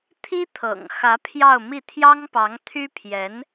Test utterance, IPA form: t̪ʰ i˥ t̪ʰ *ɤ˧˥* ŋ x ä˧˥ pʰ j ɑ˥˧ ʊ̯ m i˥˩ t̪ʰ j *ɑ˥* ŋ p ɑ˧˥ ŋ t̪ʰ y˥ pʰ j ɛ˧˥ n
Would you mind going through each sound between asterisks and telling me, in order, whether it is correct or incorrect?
incorrect, correct

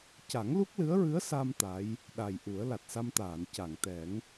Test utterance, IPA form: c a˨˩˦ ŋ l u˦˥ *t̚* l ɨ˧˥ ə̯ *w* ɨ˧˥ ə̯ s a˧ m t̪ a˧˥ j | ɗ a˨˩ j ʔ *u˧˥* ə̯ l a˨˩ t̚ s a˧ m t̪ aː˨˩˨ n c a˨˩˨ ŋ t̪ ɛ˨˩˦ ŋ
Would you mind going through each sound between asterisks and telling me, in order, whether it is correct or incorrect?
incorrect, incorrect, incorrect

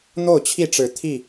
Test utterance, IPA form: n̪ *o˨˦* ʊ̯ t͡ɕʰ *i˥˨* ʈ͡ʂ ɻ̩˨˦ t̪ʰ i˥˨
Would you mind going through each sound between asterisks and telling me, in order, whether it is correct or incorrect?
incorrect, correct

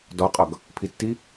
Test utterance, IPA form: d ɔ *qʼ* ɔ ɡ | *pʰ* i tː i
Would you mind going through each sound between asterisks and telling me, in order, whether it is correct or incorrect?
correct, correct

